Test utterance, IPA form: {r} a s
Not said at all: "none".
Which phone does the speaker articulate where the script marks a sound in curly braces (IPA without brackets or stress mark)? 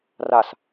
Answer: r